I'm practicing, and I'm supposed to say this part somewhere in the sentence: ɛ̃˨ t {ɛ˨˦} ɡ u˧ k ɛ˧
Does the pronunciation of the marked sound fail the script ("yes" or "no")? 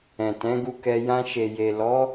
yes